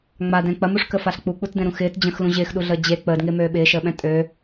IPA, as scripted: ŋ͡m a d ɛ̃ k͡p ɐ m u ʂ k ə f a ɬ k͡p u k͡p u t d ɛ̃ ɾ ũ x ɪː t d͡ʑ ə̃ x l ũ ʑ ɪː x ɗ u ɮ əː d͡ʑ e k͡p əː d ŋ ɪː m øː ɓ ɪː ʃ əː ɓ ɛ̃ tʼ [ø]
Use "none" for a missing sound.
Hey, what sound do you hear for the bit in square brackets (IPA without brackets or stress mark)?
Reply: ø